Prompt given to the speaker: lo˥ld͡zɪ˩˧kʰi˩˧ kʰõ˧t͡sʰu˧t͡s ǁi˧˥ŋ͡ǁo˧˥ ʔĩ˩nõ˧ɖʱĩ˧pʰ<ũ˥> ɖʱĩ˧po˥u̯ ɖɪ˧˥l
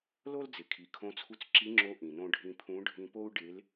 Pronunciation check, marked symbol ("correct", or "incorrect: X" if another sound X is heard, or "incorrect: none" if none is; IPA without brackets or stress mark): incorrect: ũ˧˥